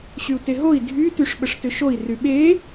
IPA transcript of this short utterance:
ɕyu̯teɦoi̯ dʱy tyʂɓəʂtʏʃoi̯ ryɓe

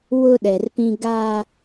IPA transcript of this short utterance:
wʊ˦ɗɛ˨rpĩ˦ ɡa˦

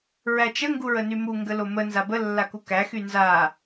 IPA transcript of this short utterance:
ɹæt͡ʃə ŋɡuɹənymu ŋɡəlomə nzabə lːakukæ xynza

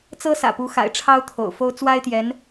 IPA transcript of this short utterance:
t͡sɤ˥sä̰˨˩pu˧˥ xa̰˨˩ɪ̯ʈ͡ʂʰɑ˥ʊ̯ t̪ʰo̰˨˩ʊ̯fo˥ʊ̯ t͡swa˥ɪ̯t̪jɛ˧˥n

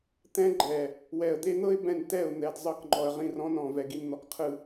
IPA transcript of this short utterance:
t̪ɛ̃˦ɡ͡ǃɛ˨ | wɛ˨ə̯d̪e˦n̪ɤ˦ɪ̯ bɛ̃˨n tɛ˦˨ʊ̯ n̪ɛ˨d zˤɤ˦˨kŋ͡ǃɔ˨ə̯ ʁĩ˦˨rɔ̃˦nɔ̃˨ vɛ˨ɡi˨n n̪ɔ˨kqʰɯ˨

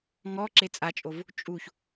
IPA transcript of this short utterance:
ŋɔǁe t͡sʼat͡ʃʼov | t͡ʃʼuç

